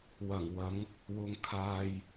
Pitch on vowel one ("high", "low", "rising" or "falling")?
low